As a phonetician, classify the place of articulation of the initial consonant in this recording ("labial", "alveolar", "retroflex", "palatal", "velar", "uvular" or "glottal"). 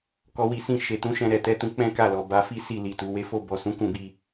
velar